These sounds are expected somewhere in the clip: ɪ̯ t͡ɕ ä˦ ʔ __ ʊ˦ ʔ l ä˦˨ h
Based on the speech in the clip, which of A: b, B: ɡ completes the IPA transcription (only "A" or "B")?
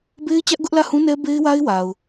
B